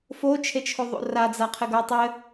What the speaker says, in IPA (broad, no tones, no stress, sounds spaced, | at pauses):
f o t͡ʃʰ e t͡ʃʰ o ðˤ o̰ r a d͡z a qʰ ɘ ɡ ʌ tˤ ɘ